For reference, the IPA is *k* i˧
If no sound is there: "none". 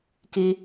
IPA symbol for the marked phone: k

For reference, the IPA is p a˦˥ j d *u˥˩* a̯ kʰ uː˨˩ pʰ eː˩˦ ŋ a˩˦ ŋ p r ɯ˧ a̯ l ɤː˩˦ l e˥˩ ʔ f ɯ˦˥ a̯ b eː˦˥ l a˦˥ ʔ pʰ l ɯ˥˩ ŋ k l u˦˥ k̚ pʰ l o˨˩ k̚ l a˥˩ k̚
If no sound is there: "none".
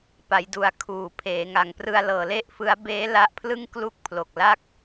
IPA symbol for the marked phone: u˦˥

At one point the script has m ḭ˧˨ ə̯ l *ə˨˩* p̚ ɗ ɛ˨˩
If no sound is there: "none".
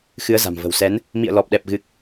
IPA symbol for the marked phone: ɔ˨˩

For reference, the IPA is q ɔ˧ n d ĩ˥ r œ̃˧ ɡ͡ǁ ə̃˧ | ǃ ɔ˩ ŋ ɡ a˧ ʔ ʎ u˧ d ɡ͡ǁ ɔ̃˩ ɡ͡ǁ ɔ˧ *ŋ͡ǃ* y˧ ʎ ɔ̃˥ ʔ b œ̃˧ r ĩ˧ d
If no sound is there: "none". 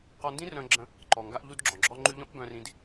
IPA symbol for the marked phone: ŋ͡ǃ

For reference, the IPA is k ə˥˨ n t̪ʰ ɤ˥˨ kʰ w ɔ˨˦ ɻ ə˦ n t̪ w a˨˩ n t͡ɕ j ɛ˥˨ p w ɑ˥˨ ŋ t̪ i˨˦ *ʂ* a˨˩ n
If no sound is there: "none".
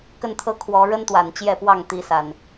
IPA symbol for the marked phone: s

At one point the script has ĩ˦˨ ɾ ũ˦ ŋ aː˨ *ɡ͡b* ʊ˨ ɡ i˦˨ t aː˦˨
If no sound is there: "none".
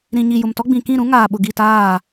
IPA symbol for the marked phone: ɓ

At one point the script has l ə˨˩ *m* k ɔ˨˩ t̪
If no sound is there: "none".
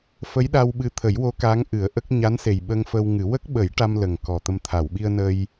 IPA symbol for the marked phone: ŋ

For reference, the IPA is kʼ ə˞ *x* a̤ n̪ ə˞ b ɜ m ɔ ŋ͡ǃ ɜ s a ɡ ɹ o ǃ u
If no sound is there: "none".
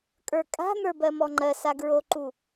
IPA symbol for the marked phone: kʼ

